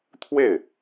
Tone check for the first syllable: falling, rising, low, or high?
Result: falling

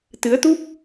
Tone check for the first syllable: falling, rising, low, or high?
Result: rising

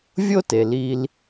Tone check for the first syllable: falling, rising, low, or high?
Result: high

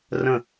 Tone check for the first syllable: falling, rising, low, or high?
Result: falling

